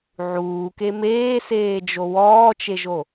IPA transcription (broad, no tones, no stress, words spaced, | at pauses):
ʕuːke meːseːd͡ʒo wɔːt͡ʃeʒo